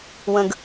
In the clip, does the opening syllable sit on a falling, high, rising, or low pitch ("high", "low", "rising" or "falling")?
high